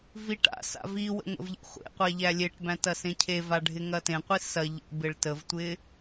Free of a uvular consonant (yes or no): no